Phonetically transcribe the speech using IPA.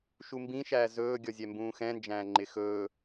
ʃumbĩʃæː zɵːɡʲɔzʲɛ mbũːxɛ̃nd͡ʒæ̃ː ŋ͡ǃɪxɵː

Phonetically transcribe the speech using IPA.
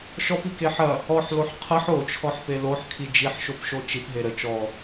ʃɔpike ħɐ | ɔħloħ qʰɐħ ot͡ʃʰɔħpe loħkʰi d͡ʒiħʃopʃo t͡ʃipɦe ɾə t͡ʃɔ

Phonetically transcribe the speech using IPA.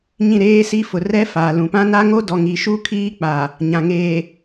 ɲĩ˦˨ɾeː˦si˦fʊ˨ rɛ˦faː˨lũ˨ pã˦na˦ŋo˦ dɔ˨ŋi˨ʃu˦ kʰiː˦k͡pa˨ | ɲã˨ŋeː˨

